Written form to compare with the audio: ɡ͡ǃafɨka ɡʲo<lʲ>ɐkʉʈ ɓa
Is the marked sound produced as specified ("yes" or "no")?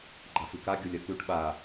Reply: yes